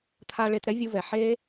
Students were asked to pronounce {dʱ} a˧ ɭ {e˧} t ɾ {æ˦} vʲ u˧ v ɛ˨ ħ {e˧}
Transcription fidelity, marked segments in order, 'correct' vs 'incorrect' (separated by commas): incorrect, correct, incorrect, incorrect